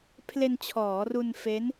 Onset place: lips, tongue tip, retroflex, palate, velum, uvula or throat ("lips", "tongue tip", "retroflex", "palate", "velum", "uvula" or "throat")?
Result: lips